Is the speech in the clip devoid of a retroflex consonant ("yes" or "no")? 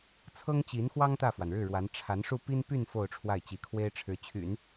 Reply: no